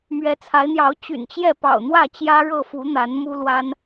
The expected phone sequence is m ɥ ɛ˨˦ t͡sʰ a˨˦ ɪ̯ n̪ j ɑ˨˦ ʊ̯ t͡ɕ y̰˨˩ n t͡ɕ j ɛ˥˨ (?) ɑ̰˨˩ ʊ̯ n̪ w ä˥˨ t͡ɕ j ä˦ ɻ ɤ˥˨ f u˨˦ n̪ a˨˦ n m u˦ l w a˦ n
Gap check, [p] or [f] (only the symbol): p